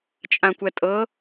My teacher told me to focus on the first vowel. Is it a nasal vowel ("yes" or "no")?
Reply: yes